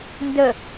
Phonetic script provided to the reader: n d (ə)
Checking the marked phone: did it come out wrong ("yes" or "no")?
no